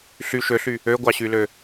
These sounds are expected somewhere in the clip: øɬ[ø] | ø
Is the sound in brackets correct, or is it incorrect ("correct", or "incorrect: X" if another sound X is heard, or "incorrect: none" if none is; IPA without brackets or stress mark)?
incorrect: y